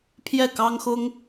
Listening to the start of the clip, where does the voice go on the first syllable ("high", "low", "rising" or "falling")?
falling